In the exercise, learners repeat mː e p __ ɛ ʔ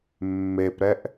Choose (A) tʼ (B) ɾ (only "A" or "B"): B